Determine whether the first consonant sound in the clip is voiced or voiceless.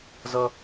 voiced